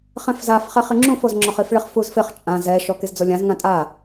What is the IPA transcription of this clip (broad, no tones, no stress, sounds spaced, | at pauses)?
χ ɛ̃ f z a f χ ɛ χ ɪ ŋ͡ǁ ũ f o z ŋ͡ǁ ɔ χ i f ɭ ɪ χ f u z f ɪ χ t͡ʃʼ ã z ɛ ʃ ɔ k e z d͡z o lʲ ã z ŋ ã tʼ a